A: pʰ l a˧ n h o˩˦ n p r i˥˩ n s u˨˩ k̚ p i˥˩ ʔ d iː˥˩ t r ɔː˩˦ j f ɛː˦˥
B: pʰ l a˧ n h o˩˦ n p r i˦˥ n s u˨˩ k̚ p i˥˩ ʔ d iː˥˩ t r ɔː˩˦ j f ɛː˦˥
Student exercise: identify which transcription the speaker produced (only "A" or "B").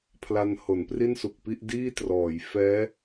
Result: A